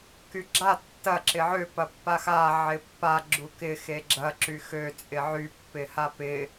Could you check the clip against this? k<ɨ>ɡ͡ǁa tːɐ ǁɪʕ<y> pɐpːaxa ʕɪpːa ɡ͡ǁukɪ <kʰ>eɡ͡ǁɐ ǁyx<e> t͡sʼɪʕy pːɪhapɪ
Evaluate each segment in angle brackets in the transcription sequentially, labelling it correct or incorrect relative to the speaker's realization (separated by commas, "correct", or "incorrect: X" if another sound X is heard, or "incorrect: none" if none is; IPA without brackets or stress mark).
incorrect: y, incorrect: ø, incorrect: x, incorrect: ø